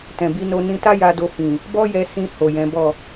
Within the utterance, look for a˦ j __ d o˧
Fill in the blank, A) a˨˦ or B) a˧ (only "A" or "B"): B